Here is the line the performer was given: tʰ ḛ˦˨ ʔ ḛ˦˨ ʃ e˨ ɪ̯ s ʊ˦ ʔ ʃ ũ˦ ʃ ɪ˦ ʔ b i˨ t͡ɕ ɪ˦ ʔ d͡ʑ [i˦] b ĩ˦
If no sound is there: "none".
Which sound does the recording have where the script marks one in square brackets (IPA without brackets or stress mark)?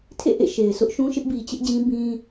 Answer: ĩ˦